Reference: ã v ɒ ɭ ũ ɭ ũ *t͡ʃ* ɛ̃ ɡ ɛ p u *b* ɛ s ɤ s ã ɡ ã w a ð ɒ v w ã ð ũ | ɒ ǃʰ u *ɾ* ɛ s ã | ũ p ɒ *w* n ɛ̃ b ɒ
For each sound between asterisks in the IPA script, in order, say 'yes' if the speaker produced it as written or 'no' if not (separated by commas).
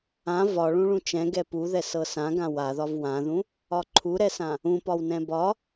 yes, no, yes, yes